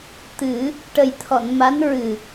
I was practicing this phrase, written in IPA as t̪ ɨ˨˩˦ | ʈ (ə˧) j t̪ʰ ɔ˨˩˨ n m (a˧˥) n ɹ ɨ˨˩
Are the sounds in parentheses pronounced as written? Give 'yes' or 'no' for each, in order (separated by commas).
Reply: no, yes